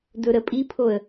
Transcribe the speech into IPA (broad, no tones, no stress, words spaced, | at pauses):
dɵɾəpʼipʰoə̯